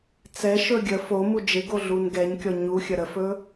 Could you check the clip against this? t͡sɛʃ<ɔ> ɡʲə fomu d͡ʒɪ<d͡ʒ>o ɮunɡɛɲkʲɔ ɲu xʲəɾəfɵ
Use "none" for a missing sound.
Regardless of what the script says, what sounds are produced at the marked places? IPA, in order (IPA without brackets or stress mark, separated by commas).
ɵ, ɡ